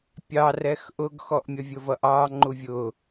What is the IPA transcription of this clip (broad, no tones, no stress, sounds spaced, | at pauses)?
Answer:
pʲ ɑ r ɛ x ʔ ʊ ɡ x ɔ ʔ mʲ ʌ vʲ ʊ v ʌ ʔ ɑː ŋ͡ǃ u vʲ ʊː